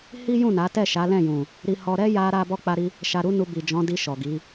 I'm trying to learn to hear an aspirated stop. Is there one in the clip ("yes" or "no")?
no